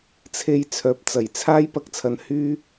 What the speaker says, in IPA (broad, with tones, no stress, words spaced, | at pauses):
t͡sʰe˧j t͡sʰœː˨p̚t͡sɐ˨˩jt͡sʰaː˥j pɐ˧k̚t͡sʰɐ˨˧n hyː˥